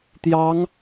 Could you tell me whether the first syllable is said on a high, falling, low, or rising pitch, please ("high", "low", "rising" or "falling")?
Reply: rising